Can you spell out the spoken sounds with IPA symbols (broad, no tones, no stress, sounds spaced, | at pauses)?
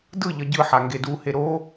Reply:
d ɯ ʎ ʌ ɟ ɯ ħ a ŋ ɡ e d u h e ɾ o